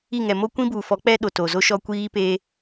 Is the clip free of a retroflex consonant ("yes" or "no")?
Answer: yes